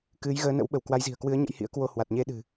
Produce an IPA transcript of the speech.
k ɨ˨˦ j ɣ əː˨˦ n ə̰˧˥ w ɓ ə˧˩ w k w a˨˦ j z i̤˨˩ ə̯ k w ɨ˨˦ ə̯ ɲ ə̰˧˥ j h ḭ˧˥ ə̯ k w o˧ h w a˨˩ t̚ ɲ e˧ ɗ ɨ̤˨˩

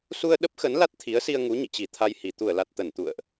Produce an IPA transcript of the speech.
s u˧ ə̯ ɗ ə˦˥ p̚ x ə˨˦ n l a˦˥ t̚ t̪ʰ i˨˦ ə̯ s i˧ ə̯ ŋ u˨˦ ɲ ḭ˧˨ t͡ɕ i˧˩ t̪ʰ a˧ j h i˧˩ t̪ u˧˩ ə̯ l a˨˩ t̚ t̪ ə˧˩ n t̪ ṵ˧˨ ə̯ ʔ

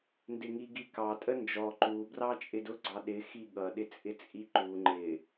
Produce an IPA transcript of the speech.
n d ɪ ŋ i ɡ i k ɑ tʼ ə n d͡ʒ ɔ ǃ u b r ɑ t͡ʃʼ ɪ d ʊ ɡ͡ǀ ɑ ɗ ɪ x i ɠ ʌ ɗ ɪ t͡sʼ ɪ t͡sʼ i ǃ u ŋ͡ǃ ɪ

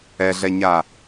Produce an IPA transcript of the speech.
ɛ ɮ ɛ ɲ a

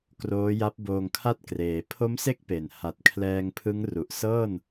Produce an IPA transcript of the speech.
k r oː˦˥ j a˦˥ p̚ b oː˧ ŋ kʰ a˥˩ t̚ k r eː˩˦ pʰ o˦˥ m s e˦˥ k̚ p e˨˩ n h a˨˩ t̚ kʰ l ɛː˧ ŋ pʰ ɯ˦˥ ŋ r u˨˩ ʔ s ɤː˥˩ n

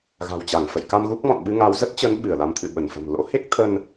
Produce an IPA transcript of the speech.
ɣ a̤˨˩ w t͡ɕ a˧˩ ŋ f ə̰˧˨ j k a˧ m ɣ u˦˥ k̚ m ɔ̰˧˨ n ɓ ɨ˧ ŋ a˨˦ w z ə˦˥ t̚ t͡ɕ əː˨˦ n ɓ ɨ˧˩ ə̯ l a˨˦ m t̪ʰ ɨ̰˧˨ ɓ ə˧˩ n f ə̤˨˩ m l o̰˧˥ h e˦˥ k̚ t̪ʰ ə˧ n

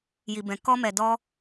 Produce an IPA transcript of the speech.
j i˨ b ɛ̃˨ k ɔ˧ m ɛ˨ d ɔ˧

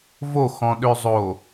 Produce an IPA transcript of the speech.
v o x ɔ̃ ɗ ø zˤ o

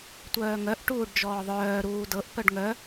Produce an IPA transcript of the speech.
tʷ œː ŋ œ ʔ ʈ uː ɖ d͡ʒ ɔː ðˤ œː ɾ uː d ɤ ʔ p œ ɖ ŋ œ

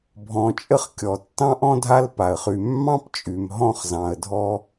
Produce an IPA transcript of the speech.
bʱ ɔ̃˨ t͡ʃʼ ə˦ χ kʲ ɔ˩ tː ɑ̃˥ ʔ ɔ̃˥ dʱ a˦ l p a˩ ə̯ χ y˨ mː ɑ̃˦ p t͡ʃʼ y˩ m ɦ ɔ̃˥ χ z ɑ̃˨ ə̯ dʱ ɔ˥

